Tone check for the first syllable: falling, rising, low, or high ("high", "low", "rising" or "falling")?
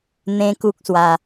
high